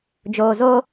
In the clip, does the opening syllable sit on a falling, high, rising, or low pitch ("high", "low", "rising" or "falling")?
low